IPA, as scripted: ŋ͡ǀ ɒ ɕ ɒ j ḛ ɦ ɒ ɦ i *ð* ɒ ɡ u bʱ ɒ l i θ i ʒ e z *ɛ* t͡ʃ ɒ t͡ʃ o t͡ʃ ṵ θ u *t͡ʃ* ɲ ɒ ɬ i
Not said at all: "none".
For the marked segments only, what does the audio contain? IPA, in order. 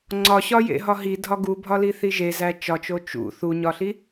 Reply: dʱ, æ, none

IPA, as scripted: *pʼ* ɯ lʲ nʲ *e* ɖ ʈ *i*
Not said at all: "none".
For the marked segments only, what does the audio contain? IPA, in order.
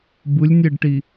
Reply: b, e, i

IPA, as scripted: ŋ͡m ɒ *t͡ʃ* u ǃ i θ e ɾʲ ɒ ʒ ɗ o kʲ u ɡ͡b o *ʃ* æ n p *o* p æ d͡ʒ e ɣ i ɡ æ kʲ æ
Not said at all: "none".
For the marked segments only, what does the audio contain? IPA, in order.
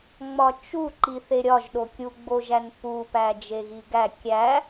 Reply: t͡ʃ, ʒ, u

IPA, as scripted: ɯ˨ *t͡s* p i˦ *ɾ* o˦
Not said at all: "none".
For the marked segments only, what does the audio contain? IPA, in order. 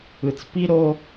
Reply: t͡s, ɾ

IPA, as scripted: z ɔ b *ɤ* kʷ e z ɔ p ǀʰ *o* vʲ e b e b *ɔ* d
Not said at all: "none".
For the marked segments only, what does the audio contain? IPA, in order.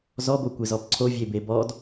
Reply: o, o, ɔ

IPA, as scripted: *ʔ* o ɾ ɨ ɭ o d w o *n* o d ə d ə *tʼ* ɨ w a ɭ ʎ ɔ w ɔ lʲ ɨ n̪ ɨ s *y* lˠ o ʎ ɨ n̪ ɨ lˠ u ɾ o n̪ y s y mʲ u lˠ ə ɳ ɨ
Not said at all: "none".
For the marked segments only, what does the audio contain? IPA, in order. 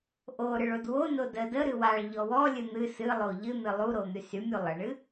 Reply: ʔ, n, ɾ, ɨ

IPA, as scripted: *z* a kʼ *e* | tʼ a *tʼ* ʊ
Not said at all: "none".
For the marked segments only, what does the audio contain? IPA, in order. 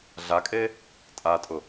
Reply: ɮ, e, tʼ

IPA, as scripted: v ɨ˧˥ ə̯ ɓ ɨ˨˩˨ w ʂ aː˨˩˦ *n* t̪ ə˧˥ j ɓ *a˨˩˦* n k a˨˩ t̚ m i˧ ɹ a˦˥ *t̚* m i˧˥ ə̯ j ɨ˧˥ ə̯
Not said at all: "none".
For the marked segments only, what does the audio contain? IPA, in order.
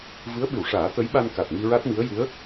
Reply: none, a˧, t̚

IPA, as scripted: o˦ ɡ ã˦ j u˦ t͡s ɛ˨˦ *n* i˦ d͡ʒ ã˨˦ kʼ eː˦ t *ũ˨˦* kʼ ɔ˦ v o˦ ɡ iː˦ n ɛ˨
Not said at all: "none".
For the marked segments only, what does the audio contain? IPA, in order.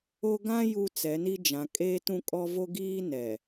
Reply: n, ũ˦

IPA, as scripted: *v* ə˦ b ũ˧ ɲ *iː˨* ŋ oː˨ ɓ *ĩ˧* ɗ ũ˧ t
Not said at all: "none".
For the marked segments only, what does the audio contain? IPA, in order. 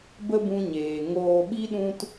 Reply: b, eː˨, i˧

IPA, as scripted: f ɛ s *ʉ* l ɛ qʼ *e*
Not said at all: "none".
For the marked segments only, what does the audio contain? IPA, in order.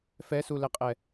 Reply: u, ɛ

